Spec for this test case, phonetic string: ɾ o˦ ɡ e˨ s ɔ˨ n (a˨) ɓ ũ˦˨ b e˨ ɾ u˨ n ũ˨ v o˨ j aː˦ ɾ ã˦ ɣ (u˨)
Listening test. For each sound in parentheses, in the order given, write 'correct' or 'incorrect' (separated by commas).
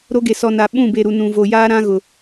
correct, incorrect